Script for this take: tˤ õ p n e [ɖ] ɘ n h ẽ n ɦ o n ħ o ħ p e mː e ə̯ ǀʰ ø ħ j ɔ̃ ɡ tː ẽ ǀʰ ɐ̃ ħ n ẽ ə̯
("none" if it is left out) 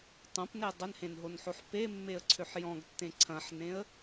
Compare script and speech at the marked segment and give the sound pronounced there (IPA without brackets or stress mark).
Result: dˤ